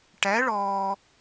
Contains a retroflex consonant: yes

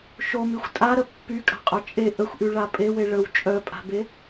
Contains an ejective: yes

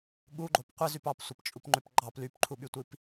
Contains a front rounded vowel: yes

